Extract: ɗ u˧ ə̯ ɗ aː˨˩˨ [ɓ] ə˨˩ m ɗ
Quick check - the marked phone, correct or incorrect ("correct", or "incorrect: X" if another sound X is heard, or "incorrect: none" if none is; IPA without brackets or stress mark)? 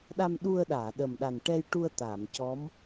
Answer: incorrect: ɗ